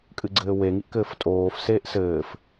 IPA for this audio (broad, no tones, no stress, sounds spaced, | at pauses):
kʼ ɨ ɡ͡ǀ ɘː w e ŋ i ʔ k ɘː f tʼ oː f s eː ʔ s ɘː f